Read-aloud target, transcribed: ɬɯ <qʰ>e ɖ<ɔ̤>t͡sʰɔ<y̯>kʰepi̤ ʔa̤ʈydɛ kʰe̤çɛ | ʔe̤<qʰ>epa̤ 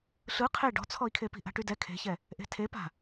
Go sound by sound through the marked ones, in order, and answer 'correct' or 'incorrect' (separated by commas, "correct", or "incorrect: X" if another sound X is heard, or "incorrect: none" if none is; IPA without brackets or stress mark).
correct, correct, incorrect: i̯, incorrect: tʰ